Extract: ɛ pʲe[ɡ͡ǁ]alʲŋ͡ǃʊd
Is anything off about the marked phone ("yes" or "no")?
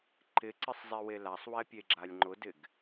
no